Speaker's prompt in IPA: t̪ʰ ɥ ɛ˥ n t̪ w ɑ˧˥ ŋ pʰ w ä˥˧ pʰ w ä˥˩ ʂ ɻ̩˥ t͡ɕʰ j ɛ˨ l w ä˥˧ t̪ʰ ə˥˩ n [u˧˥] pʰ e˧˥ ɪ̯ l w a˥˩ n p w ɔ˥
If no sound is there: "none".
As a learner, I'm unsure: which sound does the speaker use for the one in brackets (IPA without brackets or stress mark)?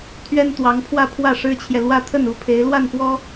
u˧˥